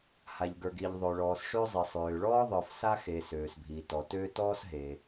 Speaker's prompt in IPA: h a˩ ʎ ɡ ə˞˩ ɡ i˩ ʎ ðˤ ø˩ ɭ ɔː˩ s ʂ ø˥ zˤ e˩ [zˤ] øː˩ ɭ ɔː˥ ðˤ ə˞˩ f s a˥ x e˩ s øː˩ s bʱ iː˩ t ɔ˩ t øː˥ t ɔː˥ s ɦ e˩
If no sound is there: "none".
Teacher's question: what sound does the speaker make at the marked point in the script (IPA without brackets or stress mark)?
sˤ